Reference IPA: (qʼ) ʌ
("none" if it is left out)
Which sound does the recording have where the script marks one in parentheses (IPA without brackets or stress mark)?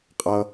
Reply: qʼ